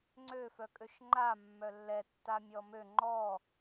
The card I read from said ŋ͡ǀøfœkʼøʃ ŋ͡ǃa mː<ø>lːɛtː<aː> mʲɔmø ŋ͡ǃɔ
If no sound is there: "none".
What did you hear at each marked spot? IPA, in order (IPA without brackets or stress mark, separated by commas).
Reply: œ, a